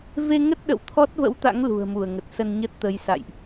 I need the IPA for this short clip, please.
v e˧ ŋ ə˦˥ t̚ ɗ ə̰˧˨ w t̪ʰ ɔ˦˥ t̚ v ə̰˧˥ w t̪ a̰˧˥ ŋ l ṳ˨˩ ə̯ m u˧˩ ə̯ ŋ ə˨˩ t̚ s ə˧ n ɲ ə˦˥ t̚ t̪ ə˨˦ j s a̰˧˨ j ʔ

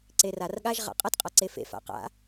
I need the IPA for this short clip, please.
ǀ e r a r ɠ a ʒ ʁ a̰ qʼ ʌ t qʼ a ǀ e f ḛ f a̰ q a̰

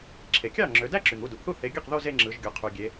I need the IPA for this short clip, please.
ǁʰ e˩ kʲ ɑ˥˩ ŋ͡ǁ ø˩˧ d æ˥˧ ǁ y˩ ŋ u˥˩ d u˩ ʔ θ u˥˩ θ e˨˥ ɡʲ ɯ˥˩ q ð o˥˧ z e˥˧ ŋ͡ǁ ɯ˩˧ ʒ ɡʲ o˩˧ qʰ y˩ ɡʲ e˩˧

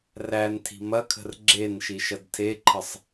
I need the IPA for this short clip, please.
r æ n tʰ i̤ m ɐ kʰ ə̤ r ɡ͡ǁ e n ʃ i ʃ ɐ d tʰ e ǃʰ ə sˤ

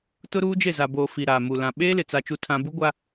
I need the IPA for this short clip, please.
t ʊ˦ ɾ uː˦ d͡ʒ e˦˨ z a˨ b oː˨ f i˨ ɾ aː˨ m u˨ l ã˨ ɓ eː˦ l ɪ˨ t͡s a˦ t͡ʃ u˦ tʰ ã˦ b u˦ ɡʷ a˦

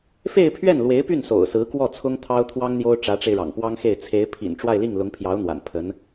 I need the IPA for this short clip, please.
f e˥˧ ɪ̯ pʰ ɥ ɛ˥˩ n l w e˧˥ ɪ̯ p y˥˩ n s o̰˨˩ ʊ̯ s ɹ̩˧˥ k w ɔ˥˩ t͡sʰ ʊ˥ ŋ t̪ʰ ɑ˥ ʊ̯ t̪ʰ w ɑ˥ ŋ n̪ j o˥ ʊ̯ ʈ͡ʂ ä˧˥ ʈ͡ʂ e˧ ɪ̯ ɻ ɑ̰˨˩ ŋ p w ɑ˥ ŋ x e˥˩ ɪ̯ t͡sʰ e˧˥ ɪ̯ pʰ ḭ˨˩ n ʈ͡ʂ w a˥˧ ɪ̯ l i˥˩ ŋ l ʊ˧˥ ŋ pʰ j ɑ˧˥ ʊ̯ n̪ w a̰˨˩ n pʰ ə˧˥ n

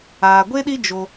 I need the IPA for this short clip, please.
aː˨ ɡʷ e˦ ɗ i˦ d͡ʒ o˧

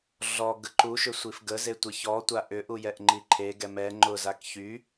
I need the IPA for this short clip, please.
ɮ ɔ ɡ ə ǃ u ʃ ʏ sʷ i f ɡ ə z e tʷ ɪ ç ɔ tʷ a ʔ ʏ ʔ u j ɛ ʔ ŋ͡ǃ i ǃʰ e ɡ ɛ m ɛ ŋ͡ǃ ʊ z a k ç y

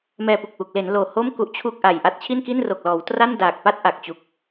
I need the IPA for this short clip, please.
m ɛː˧ p u˨˩ k̚ w u˨˩ k̚ l e˩˦ n l oː˨˩ h o˥˩ m k u˦˥ ʔ t͡ɕʰ u˥˩ k̚ ʔ a˨˩ j ʔ a˦˥ t̚ t͡ɕʰ i˥˩ n k i˥˩ n r o˨˩ k̚ l ɔː˩˦ w t r a˥˩ n d aː˨˩ k̚ p a˥˩ t̚ ʔ a˨˩ k̚ t͡ɕ u˨˩ k̚

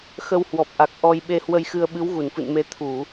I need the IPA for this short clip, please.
x ə˧ w h w ɔ˨˩ p̚ ʔ a˨˩ k̚ ʔ ɔ˧ j ɓ e˧ h w ə˧ j x ɨ˧ ə̯ ɓ ɨ˨˦ w ɣ u˧˩ n f ɨ̰˧˨ n m e˨˦ t̪ʰ u˧˩˨

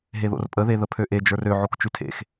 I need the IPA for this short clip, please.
ɦ e ð o̰ r pʼ ə ð e ð ə pʰ ø ʔ e d͡ʒ ə˞ r ø ʕ o k t͡ʃ ʉ tʰ ḛ x

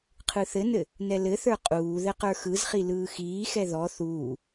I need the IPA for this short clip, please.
qʰ ɯ θ ɘ n ɘ | n ɛ l ɘ θ ə˞ qʼ uː ð ɘ q ə˞ x ɯ z χ i l ɯː x iː x ɛ ð ɔ θ uː

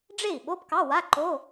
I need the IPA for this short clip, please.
ɖ͡ʐ e˥˩ i̯ ɓ o˧˥˧ p k ɑ˧˥˧ w a˧˥˧ ǃ o˧˥˧

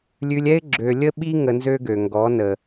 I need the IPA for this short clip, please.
lʲ ʉ˧ lʲ ɛ˦ ɪ̯ ɡ͡ǁ ø˧ lʲ ə˦ ɓ i˦ ŋ ə˧ n z ø˦ ɡ ø˨ ŋ ɡ ɔ˨˦ n ə˨

